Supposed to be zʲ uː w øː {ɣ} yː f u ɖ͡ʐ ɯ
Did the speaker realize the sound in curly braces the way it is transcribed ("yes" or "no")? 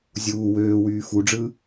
no